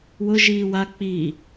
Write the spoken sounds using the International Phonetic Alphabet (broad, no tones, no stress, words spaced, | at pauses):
wʊ ʒiːwa k͡pi